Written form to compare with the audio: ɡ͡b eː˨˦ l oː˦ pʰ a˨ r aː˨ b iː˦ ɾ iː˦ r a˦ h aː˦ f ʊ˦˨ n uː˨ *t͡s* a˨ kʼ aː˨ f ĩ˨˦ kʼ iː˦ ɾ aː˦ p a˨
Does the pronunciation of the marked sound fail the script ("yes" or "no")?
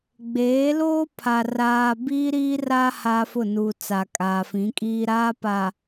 no